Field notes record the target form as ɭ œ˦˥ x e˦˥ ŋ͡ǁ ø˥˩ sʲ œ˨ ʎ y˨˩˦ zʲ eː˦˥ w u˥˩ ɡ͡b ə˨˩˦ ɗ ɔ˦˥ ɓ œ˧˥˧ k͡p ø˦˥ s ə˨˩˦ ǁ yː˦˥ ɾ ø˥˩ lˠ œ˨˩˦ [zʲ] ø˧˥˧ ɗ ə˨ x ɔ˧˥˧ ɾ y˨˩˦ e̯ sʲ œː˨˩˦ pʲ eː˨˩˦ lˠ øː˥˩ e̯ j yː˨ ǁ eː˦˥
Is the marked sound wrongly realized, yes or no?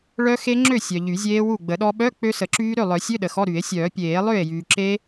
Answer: yes